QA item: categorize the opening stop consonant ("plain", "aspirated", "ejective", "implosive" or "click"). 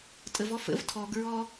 ejective